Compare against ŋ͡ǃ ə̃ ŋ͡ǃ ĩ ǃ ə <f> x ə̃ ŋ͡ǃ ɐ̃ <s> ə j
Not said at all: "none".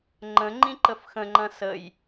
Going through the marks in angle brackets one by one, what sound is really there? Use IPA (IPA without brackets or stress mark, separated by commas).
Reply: f, s